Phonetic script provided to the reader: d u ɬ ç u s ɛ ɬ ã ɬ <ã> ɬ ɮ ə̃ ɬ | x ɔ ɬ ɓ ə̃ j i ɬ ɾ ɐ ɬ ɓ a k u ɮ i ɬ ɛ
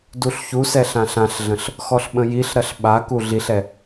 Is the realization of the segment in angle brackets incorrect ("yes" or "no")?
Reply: no